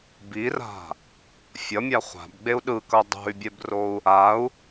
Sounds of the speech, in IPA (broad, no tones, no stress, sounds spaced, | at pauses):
b i r a̤ | fʲ ʌ mʲ a χʷ a̤ b ɡ͡b e u̯ ɗ ɯ k ʌ dˤ o̤ y̯ bʲ ɛ b r o u̯ | a u̯